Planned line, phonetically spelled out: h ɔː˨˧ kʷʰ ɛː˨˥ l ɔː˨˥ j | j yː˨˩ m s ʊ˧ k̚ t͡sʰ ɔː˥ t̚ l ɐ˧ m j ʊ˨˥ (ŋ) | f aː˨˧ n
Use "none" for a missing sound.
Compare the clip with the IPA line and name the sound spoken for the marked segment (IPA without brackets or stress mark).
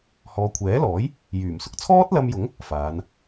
ŋ